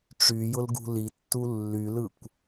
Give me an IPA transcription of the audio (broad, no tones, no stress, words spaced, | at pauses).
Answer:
ʈ͡ʂyjʊlɡṳ litːu lːylɯkʷ